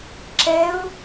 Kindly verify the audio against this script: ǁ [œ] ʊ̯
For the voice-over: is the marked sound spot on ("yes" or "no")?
no